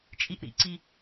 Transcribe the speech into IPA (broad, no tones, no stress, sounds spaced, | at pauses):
t͡ʃʼ i ʔ ɾ ḭ ǀ i